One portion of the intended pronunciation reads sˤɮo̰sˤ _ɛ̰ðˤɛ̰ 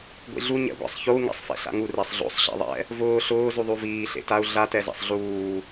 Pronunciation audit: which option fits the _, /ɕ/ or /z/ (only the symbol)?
ɕ